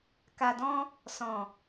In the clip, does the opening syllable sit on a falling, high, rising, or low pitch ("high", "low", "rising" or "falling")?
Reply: low